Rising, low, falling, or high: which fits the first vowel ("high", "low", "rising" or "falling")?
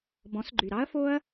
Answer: rising